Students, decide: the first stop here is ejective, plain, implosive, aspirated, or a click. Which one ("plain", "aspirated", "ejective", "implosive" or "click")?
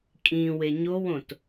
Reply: ejective